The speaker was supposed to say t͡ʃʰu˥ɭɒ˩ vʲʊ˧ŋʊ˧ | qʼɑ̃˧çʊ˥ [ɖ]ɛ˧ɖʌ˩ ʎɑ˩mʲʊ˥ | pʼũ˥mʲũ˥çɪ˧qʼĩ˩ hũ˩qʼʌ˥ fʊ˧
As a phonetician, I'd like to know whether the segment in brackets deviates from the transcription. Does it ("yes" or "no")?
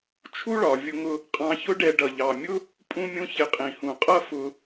no